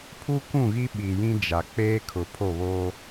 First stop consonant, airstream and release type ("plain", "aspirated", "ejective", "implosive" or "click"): aspirated